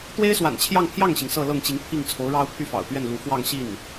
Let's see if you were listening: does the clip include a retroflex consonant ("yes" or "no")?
yes